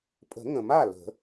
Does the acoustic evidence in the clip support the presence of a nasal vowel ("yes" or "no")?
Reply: yes